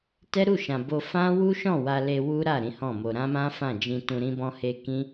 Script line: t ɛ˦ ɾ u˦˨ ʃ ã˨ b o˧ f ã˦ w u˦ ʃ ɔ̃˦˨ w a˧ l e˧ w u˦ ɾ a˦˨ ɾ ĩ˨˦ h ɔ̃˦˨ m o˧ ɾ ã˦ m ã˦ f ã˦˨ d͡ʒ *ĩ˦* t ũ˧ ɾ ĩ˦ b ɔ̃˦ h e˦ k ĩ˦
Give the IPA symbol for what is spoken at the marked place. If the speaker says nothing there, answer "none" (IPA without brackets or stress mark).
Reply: ĩ˧